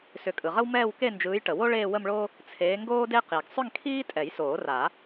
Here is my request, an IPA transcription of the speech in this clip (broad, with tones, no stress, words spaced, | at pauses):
sʏ˨˩˦kʼɯ˩ʁə˥w mɛː˥˧wke˥˧nd͡ʒɯː˨˦j ʈə˩wo˥ ɭeː˥˧wə˥˧mɭo˥ | t͡sʰeː˨˦ŋɡoː˥de˥qi˩ɡ sˤʏ˥˧ŋkʰiː˥ tʼɛ˨˩˦jsoː˨˩˦ra˨˩˦